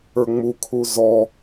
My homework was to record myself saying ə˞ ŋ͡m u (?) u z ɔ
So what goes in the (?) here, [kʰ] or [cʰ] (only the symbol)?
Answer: kʰ